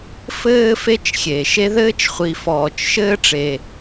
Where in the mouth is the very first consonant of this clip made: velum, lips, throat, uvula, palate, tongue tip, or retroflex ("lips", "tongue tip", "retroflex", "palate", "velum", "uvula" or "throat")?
lips